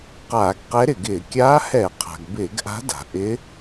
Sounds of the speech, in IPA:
qaː˧˩˧ɡqɛ˧˥ɾɪ˩ɡɪː˧˩˧ kʲaː˧˥hɛ˧˩˧qʰa̤˩ɡ bɪː˧˩˧ɡʔa̤˧˥ da̤˩ʔɪ˧˥

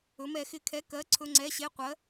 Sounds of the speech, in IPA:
ɵ˨˥mɛ˨˥xɪ˧˥˧kʰɛ˧˥˧ kɜ˧˥˧ǀʰɵ˧˥˧ŋ͡ǀɛ˧˥˧ɕe˧˥˧ qʷɜ˨˥

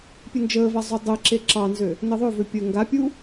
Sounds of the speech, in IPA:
pʲɘnd͡ʒəːva zˤudˤɘǁe ǁɑnzø | nɘðˤøvø pʲəːŋɡapʲuː

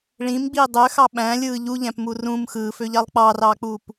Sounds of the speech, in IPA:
ɭĩmɡ͡biː dˤøxɑ ɓæ̃lʲɯː ʎuʎæ̃pmu rũm xɯːføʎɑlˠ k͡pɑːrɑːk͡puːp

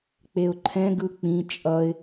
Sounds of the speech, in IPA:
k͡peʊ̯ǃʰɛ̃ ɡɯk͡pĩ t͡ʃʼʌɪ̯

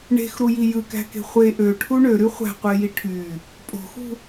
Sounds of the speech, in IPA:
ɳe̤xɾuji jɯkæ̤ke̤ χʷe ʔøʈʰu ɳøɾy χʷæ̤qʷeji ʈʰy | pʼo̤xṳ

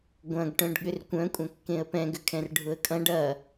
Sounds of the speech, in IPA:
ɡʷɐ̃ɡʈœ̃ɖ ɠʏrkʷœ̃kʷʼɐ̃ kːẽə̯pɛ̃ɡʏkʰɛ̃r ɖʱʊə̯kʼɐ̃ɖ ɐ

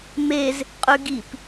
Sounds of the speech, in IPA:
mez | qʼʉɡip

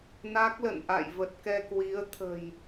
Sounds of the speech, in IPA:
na˦˥k̚lə̰˧˨n ʔa̰˧˨jvə˨˩t̚kɛ˧ kwi˨˦ə̯ t̪ʰə̤˨˩j

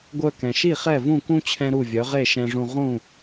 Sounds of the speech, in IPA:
ɡʷœ˧kɛ̃˩ʃi˥˩ χɛ˥˩vũ˥˩kũ˥ t͡ɕʰɛ̃˥ɾu˥˩vʲœ˩˥ ʁe˥˩ʃɛ̃˧ʐũ˧ ʁũ˥˩

